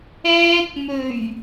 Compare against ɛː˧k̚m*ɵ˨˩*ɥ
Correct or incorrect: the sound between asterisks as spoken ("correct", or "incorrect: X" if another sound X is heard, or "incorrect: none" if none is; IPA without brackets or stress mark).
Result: correct